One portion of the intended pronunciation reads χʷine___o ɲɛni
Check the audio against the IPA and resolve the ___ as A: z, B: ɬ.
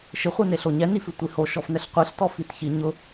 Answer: B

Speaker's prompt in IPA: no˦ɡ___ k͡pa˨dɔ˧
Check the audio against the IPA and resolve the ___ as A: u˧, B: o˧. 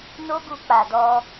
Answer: A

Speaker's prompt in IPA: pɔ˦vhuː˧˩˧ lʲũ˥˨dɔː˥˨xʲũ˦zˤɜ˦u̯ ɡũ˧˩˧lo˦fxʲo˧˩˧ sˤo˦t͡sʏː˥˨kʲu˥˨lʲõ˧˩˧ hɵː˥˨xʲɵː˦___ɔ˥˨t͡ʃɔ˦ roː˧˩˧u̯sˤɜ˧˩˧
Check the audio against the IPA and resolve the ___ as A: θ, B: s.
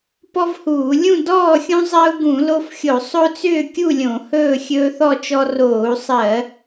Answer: A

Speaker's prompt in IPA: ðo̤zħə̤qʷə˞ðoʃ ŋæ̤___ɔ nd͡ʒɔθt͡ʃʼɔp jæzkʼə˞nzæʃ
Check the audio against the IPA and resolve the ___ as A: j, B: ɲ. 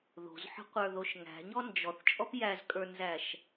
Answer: B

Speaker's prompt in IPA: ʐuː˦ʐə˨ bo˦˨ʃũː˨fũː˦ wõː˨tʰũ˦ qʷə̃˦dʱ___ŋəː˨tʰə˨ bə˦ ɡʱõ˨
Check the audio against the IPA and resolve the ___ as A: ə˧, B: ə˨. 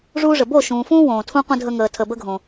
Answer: A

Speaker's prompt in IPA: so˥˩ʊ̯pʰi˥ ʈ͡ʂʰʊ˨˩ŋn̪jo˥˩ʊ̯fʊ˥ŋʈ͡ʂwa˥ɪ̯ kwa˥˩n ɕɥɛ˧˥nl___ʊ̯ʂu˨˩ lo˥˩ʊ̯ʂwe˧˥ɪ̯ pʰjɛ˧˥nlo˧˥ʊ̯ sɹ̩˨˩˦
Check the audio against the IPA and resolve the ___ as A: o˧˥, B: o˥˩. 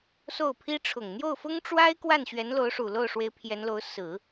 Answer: A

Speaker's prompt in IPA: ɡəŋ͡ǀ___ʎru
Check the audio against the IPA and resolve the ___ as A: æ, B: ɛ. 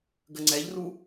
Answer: B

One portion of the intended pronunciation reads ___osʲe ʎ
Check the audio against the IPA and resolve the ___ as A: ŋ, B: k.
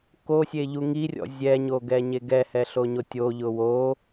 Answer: B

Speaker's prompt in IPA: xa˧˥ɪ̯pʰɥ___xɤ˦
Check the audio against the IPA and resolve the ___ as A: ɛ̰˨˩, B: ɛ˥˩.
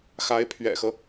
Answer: A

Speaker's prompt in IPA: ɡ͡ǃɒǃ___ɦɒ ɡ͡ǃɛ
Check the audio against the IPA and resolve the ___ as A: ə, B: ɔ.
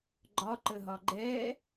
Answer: A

